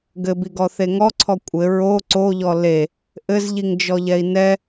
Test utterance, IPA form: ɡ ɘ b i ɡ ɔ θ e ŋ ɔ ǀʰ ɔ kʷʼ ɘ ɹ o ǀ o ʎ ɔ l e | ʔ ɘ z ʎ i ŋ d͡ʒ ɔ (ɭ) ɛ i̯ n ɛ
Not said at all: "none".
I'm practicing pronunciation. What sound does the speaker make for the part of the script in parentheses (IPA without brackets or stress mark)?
ʎ